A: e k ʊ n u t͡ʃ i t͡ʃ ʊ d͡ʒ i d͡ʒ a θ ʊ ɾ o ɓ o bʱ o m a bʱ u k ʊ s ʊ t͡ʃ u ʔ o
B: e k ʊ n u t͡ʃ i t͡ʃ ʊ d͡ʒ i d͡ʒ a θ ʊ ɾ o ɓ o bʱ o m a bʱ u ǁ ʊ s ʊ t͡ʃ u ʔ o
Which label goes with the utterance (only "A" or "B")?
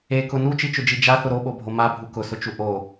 A